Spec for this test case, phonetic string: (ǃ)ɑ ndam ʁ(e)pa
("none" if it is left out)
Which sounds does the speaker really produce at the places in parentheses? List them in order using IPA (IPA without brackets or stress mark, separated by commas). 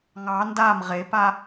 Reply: ŋ, e